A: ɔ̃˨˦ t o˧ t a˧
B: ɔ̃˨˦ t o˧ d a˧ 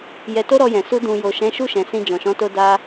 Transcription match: B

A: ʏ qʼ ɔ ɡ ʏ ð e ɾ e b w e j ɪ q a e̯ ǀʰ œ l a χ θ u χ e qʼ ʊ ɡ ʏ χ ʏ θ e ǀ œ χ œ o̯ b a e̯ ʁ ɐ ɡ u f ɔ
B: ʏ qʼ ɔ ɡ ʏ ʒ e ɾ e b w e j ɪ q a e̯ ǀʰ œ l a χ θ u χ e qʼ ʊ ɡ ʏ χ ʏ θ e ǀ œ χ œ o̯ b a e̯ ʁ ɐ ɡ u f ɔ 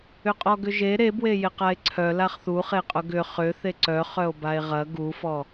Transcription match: B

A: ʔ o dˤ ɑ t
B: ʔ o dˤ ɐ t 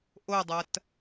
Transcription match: B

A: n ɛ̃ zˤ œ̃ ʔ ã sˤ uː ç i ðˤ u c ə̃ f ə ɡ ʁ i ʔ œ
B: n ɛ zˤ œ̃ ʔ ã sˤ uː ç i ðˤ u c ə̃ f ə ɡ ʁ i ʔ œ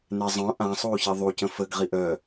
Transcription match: B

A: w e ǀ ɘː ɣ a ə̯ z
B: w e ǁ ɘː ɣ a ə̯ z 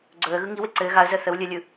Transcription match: A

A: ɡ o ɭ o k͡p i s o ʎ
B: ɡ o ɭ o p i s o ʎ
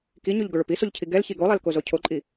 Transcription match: B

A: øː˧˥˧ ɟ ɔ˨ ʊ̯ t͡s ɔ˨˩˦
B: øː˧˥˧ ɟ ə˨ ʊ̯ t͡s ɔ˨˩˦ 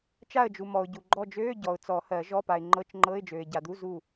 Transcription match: A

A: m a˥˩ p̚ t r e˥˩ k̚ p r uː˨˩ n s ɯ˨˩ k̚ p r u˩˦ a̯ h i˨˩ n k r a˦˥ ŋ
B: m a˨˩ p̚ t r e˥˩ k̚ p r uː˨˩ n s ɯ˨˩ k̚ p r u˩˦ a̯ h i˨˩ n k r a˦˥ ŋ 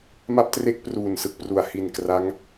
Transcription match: A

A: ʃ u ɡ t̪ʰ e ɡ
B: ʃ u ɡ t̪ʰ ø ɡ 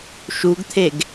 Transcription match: A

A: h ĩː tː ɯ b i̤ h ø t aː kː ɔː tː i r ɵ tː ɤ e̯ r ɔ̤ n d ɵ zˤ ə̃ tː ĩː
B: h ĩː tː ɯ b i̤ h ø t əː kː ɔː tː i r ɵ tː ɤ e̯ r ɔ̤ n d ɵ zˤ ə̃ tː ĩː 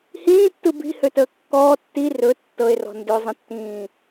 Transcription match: B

